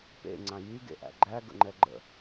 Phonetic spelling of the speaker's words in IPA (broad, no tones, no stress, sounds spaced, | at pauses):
p ḛ ŋ͡ǀ ã j y ɡ ḛ ʔ æ̰ ɡ͡ǃ æ ɡ ə̰ ŋ͡ǃ ɛ ɡ͡ǃ ə̰